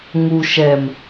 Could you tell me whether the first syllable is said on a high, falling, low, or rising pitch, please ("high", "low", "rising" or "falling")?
low